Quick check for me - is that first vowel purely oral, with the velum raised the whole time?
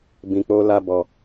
no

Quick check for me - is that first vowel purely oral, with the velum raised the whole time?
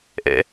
yes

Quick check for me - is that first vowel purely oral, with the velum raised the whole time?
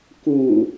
yes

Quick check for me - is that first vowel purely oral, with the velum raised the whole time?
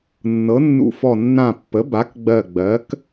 yes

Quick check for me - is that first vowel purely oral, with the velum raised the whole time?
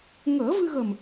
yes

